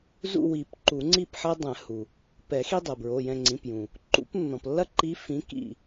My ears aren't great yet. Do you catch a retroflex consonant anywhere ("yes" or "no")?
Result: no